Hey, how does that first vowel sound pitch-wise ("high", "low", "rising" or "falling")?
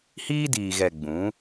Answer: high